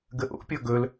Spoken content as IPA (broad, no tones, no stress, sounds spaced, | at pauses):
ɡ ə ʔ o̰ pʲ ɔ ɡ ɵ l